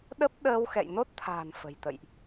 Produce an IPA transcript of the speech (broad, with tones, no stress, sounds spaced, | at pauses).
ɗ ə˦˥ p̚ ɗ əː˧ w x ɛ̰˧˨ j n o˦˥ t̚ t̪ʰ a̤ː˨˩ n f ə̤˨˩ j t̪ ə̰˧˨ j ʔ